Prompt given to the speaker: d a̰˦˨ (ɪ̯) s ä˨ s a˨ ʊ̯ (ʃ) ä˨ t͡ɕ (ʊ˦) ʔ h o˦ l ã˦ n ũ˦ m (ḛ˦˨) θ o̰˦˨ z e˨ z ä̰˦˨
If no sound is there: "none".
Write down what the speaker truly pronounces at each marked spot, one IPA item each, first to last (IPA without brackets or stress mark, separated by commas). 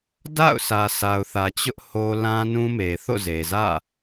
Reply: ʊ̯, θ, ʊ˦, e˨